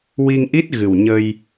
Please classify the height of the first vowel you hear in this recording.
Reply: high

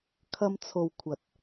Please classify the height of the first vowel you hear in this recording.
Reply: low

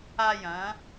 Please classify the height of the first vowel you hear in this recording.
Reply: low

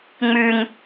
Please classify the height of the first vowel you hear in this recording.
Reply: high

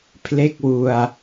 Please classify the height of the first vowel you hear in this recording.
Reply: mid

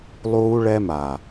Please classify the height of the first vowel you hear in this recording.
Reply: high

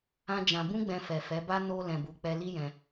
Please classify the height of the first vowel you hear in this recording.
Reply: low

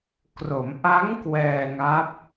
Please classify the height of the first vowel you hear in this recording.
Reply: mid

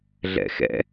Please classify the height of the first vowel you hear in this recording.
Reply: mid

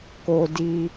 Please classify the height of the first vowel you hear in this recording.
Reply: mid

